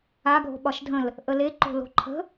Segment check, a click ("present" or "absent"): present